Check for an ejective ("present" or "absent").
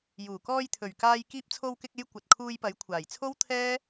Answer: absent